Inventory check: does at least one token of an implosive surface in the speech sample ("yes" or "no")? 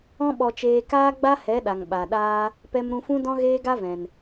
yes